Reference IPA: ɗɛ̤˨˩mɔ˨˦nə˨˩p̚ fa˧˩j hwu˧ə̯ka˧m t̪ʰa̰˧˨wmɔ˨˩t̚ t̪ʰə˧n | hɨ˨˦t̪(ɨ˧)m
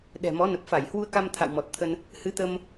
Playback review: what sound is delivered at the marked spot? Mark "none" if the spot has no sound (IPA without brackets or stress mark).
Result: ə˧